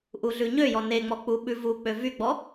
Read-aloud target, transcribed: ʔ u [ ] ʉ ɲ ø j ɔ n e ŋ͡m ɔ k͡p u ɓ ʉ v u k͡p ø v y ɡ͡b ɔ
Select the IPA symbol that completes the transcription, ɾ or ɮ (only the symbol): ɮ